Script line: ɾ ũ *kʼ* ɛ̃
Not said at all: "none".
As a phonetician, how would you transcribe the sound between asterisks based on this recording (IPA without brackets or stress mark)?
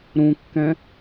kː